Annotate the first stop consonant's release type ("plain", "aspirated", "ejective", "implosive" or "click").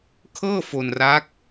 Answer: aspirated